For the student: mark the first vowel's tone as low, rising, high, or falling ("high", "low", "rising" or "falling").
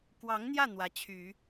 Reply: rising